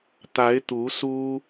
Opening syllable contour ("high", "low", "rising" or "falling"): rising